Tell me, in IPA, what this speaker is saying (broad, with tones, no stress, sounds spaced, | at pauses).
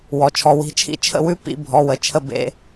w ɔ˩ t͡ʃʰ ɔ˩ w i̤˩˧˩ t͡ʃʰ ḭ˦˥ t͡ʃʰ ə̰˥˨ w ʉ˧˥˧ p ḭ˧˥˧ bʱ ɔ˩˧˩ w ə˩˧˩ t͡ʃʰ ə˥˨ b ḛ˧˥˧